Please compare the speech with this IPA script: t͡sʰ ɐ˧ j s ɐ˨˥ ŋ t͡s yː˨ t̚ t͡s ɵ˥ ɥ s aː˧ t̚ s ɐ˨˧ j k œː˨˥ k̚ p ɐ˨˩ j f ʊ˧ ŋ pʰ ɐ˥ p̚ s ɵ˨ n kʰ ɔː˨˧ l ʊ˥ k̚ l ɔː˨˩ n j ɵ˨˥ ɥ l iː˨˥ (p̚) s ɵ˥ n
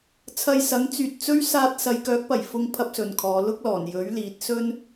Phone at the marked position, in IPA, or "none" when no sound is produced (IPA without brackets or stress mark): t̚